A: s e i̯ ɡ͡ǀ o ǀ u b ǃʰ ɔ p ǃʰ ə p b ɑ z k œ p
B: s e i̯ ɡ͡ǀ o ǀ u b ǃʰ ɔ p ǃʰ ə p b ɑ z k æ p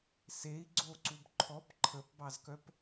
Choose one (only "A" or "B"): A